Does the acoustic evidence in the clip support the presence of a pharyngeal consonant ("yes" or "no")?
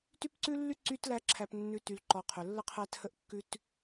no